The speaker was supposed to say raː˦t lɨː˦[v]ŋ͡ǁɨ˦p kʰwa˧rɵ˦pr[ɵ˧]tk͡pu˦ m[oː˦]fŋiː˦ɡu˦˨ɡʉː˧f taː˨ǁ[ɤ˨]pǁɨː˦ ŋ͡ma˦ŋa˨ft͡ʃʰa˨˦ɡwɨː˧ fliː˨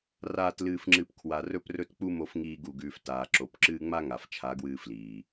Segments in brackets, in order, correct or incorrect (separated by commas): incorrect, incorrect, incorrect, incorrect